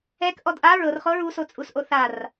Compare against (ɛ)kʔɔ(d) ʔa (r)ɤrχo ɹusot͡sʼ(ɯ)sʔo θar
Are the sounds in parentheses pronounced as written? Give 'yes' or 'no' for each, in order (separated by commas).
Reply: yes, yes, no, no